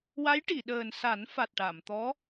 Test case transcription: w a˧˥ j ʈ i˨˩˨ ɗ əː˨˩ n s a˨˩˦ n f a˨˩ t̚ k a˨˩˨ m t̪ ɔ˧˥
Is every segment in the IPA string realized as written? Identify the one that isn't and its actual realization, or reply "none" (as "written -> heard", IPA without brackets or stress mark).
k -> ʈ